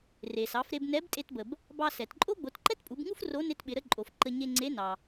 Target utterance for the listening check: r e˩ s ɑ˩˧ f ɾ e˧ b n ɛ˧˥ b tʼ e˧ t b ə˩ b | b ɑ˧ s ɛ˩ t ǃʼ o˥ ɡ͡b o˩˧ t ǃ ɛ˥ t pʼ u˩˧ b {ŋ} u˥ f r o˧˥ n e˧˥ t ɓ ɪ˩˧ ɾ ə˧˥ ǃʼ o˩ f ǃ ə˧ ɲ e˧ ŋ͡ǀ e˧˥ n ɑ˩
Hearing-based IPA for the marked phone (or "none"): ŋ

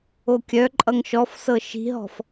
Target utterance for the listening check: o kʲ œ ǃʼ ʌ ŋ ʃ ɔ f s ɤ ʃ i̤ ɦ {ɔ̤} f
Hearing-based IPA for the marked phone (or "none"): ɔ̤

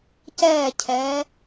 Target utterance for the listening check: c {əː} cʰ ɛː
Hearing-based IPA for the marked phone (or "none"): ɛː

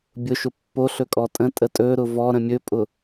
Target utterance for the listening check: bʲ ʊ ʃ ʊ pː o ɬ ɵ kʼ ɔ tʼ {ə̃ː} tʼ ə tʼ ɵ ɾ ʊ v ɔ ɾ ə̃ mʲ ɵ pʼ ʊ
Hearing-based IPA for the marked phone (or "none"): ə̃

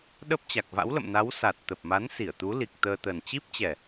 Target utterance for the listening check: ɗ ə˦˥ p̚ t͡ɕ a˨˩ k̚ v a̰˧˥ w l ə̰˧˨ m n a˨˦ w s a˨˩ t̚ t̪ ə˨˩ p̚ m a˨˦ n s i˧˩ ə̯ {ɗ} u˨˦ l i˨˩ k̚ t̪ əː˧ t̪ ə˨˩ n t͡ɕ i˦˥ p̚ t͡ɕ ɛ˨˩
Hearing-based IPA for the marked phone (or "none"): t̪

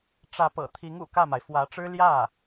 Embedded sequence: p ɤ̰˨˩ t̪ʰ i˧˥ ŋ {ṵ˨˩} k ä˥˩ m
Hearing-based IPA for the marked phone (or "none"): ṵ˨˩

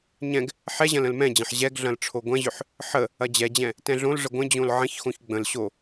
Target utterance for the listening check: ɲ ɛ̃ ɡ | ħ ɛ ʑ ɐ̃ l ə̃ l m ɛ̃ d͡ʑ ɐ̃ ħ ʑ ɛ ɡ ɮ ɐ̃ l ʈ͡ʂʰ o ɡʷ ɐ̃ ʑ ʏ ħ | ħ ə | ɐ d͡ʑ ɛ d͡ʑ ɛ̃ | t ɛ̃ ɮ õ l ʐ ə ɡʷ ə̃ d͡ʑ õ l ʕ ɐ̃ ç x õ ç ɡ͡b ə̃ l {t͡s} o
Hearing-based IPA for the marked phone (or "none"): ɕ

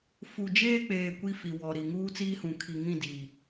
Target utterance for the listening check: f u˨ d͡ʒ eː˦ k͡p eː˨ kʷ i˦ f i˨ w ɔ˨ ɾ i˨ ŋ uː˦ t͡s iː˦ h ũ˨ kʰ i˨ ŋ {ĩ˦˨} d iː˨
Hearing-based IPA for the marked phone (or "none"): ĩ˦˨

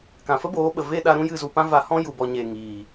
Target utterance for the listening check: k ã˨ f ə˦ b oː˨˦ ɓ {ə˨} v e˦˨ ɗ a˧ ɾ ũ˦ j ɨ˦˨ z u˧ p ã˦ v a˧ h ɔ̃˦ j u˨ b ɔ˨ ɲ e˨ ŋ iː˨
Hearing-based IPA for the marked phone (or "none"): ə˨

